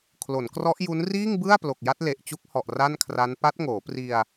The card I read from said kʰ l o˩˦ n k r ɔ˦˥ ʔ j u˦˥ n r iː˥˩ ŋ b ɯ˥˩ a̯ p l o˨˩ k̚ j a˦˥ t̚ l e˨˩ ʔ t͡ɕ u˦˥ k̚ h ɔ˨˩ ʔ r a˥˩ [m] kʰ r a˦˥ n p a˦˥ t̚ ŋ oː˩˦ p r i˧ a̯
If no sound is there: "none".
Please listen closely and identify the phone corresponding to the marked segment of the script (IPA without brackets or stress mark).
n